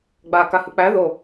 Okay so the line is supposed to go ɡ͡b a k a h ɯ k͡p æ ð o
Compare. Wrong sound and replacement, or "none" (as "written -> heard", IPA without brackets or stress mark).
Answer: none